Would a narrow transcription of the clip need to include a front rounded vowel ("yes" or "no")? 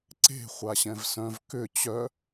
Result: yes